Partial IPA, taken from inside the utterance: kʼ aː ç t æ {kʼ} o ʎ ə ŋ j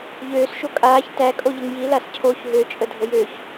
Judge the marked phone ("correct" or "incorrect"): correct